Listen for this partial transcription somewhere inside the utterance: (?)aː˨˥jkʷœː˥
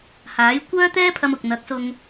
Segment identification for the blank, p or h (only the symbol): h